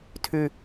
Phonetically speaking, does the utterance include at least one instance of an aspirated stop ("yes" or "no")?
yes